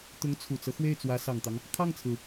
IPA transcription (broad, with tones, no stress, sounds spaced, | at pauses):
t̪ ʊ˧˥ ŋ t͡sʰ u˨˩ t͡s ɤ˦ x w e˥˩ ɪ̯ t͡s w ä˧˥ s ɑ˨˩ ŋ t̪ ɑ˦ ŋ | kʰ ɑ˥˩ ŋ t͡sʰ ɹ̩˩